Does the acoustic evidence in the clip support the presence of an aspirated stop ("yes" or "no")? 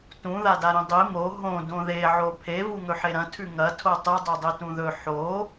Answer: yes